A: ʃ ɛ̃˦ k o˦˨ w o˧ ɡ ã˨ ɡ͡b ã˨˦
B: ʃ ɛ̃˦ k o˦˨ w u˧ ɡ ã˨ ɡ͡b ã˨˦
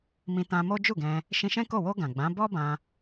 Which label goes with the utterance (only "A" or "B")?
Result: A